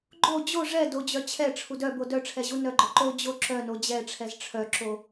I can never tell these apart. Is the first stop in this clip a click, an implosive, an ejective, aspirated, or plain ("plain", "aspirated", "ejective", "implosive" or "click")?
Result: click